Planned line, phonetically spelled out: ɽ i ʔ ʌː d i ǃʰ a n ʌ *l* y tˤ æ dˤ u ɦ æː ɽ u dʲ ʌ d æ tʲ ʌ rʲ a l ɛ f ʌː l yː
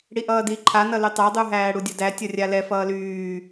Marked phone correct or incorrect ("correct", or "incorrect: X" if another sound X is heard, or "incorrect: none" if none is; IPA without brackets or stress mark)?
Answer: correct